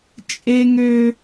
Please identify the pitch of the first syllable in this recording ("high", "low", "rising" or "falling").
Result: high